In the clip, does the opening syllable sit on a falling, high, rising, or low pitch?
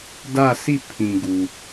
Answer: falling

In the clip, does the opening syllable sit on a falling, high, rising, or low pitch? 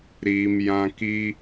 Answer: low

